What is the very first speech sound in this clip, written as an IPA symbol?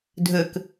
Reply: dʱ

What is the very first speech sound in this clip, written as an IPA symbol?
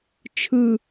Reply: t͡ʃʰ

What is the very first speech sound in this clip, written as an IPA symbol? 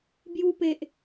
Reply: b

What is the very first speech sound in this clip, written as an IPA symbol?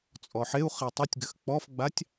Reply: t͡sʼ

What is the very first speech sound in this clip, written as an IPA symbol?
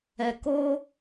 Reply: ɛ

